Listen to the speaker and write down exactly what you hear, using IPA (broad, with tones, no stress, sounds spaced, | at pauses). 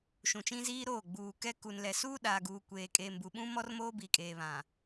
ʃ ũ˨ t͡ʃ ĩ˦ z iː˦ ɾ oː˦˨ ɡ͡b uː˨ k ɛ˦ k u˨ n l ɛ˨ s uː˦ ɗ aː˨ ɡ uː˨ kʷ eː˨ kʼ eː˨ m b u˨ ɓ ũ˦ m ɔ˦ r m oː˦ b iː˨ kʼ eː˨ β ã˨